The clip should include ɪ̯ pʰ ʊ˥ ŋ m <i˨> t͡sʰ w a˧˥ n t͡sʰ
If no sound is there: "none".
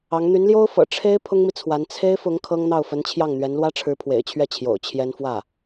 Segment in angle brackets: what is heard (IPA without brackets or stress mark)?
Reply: i˨